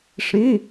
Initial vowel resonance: nasal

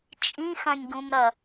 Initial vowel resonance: nasal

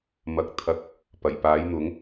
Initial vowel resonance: oral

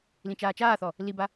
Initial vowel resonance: nasal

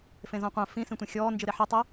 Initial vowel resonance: nasal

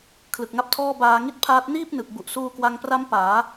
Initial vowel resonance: oral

